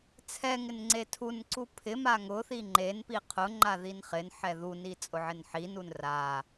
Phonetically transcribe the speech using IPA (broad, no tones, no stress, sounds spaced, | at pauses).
t͡sʰ ɛ ŋ ɪ n ŋ͡ǀ e tʰ u n ǀ u pʰ ɪ m a ŋ ʊ θ i ŋ͡ǃ e n p i qʰ ʊ ŋ͡ǃ a ð i n χ ɪ n ħ ɛ ð u n i t͡sʼ ʊ ʕ ɪ n ħ i n u n r a